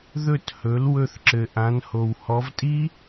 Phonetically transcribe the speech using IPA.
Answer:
ð ɵ˧˩ t h ɵ˩˧ l w ɵ˧˩ θ ǁ ɘ˩ ʔ ã˩˧ n h o˩ w h ɔ˩˧ v tʼ i˦˥

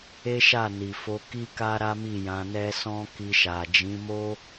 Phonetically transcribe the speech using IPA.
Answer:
e˦ ʃ a˦˨ n i˨ f o˧ k i˦ k a˦ ɾ a˦ m i˦˨ j ã˧ n ɛ˦ s ɔ̃˦ k i˧ ʃ a˨ d͡ʒ ĩ˨˦ m o˦

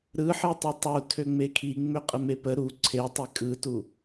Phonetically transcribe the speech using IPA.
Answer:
ɾ ɯ ħ ɯ tˤ u tˤ u tʰ ø ŋ͡m e kʰ i ŋ͡m ø qʼ ə m e p ə ɾ u ǀʰ e tˤ e kʼ ɯ t u

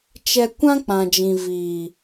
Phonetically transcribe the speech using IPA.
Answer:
t͡ʃ ɛ˦ kʷ ã˦ k͡p ã˨ d͡ʒ ĩ˨ v iː˨

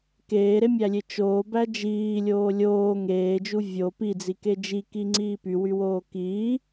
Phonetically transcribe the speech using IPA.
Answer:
k eː ɾ e mʲ æ lʲ e t͡ʃ oː b æ d͡ʒ iː lʲ oː lʲ oː ŋ eː d͡ʒ u vʲ o p i d͡z i k e d͡ʒ i k i ŋ͡ǀ iː p y w y w oː k iː

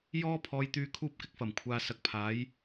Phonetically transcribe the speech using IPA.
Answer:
j ɔː˥ pʰ ɔː˧ j t̪ yː˧ kʰ uː˧ p̚ k ɪ˨ k̚ f ɐ˨˩ m kʷʰ aː˨ s ɐ˨ k̚ pʰ aː˨˧ j

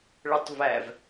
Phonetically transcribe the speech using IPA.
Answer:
ɭ ɵ tˤ v æ v

